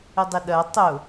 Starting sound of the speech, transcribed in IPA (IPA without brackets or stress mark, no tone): ɪ